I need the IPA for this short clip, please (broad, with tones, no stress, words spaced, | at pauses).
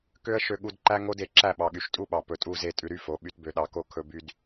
kø˦ə̯ ʃø˧ɠu˧dǃæ˦ŋo˦d e˨ǁæ˦˨ɓɑ˨ɠy˨ʃ tʼu˦ɓɑ˨ pɵ˨tʼu˦˨ze˦˨ tʼʉ˧ɾy˦fo˨˦ ɓy˧tbø˧ɗɑ˧ko˦ kʰɵ˧by˧d